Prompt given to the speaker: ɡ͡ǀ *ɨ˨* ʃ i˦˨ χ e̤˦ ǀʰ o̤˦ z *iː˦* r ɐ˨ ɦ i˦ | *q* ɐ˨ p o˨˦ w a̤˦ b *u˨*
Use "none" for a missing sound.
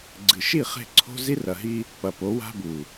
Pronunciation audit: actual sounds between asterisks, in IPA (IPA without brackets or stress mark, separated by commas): ɨ˨, i˦, p, u˨